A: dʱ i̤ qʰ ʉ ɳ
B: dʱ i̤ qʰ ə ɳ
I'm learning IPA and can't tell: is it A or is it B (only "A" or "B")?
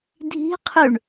A